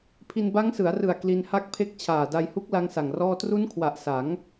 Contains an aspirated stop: yes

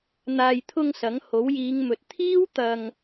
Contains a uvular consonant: no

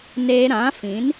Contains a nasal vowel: yes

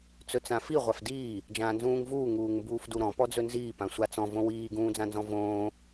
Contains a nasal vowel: yes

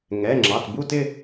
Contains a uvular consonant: no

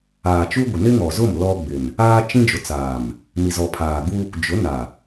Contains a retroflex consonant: no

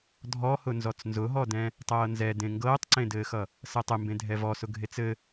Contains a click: yes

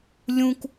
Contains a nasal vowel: yes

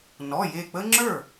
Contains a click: yes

